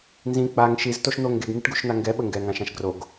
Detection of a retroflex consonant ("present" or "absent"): present